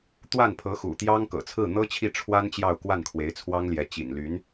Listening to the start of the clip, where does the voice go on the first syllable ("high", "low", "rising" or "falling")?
falling